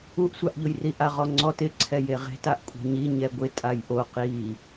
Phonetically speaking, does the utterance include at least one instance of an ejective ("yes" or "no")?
yes